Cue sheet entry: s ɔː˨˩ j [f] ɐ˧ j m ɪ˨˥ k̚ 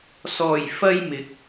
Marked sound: correct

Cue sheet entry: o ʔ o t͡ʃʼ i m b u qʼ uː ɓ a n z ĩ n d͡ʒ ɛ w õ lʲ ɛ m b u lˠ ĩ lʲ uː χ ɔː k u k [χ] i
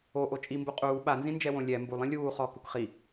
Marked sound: correct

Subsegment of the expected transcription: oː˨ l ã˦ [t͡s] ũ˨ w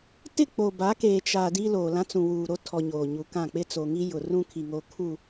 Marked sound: correct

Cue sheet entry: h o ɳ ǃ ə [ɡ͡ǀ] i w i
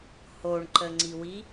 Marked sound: incorrect: ŋ͡ǀ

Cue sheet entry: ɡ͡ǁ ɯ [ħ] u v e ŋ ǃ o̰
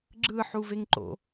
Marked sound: correct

